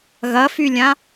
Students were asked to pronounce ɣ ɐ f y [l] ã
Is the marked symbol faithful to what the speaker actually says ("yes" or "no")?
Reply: no